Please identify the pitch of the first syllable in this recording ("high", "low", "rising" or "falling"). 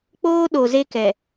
high